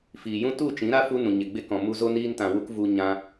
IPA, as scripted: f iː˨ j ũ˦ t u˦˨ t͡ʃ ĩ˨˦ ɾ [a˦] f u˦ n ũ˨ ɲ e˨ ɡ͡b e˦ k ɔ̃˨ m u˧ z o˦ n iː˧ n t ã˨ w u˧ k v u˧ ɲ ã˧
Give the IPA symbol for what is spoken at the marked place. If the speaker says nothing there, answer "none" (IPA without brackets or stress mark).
a˦